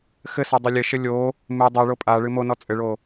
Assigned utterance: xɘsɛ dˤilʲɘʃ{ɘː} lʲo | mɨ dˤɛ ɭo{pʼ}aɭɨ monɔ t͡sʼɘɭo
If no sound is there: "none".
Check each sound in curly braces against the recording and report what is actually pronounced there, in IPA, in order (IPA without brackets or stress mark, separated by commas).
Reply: ɘ, pʼ